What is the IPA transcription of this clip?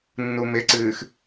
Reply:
nːumɪǀɨːx

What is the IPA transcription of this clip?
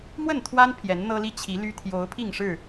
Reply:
mwə˥˨nt̪ʰwa˦n pʰjɛ˨˦nn̪ɤ˦li˦ t͡ɕʰi˨˦ly˦ t̪ʰjo˨˦ʊ̯ pʰi˥˨ŋʂɻ̩˥˨

